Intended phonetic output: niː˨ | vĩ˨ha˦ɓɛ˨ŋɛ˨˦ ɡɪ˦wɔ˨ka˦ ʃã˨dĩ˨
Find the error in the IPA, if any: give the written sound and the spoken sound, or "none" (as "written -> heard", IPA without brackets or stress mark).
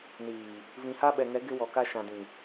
none